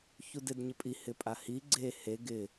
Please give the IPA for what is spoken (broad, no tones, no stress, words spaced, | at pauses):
çudɪd ɲɪpʼi hɪpʼahi ɡ͡ǀe he ɡɪ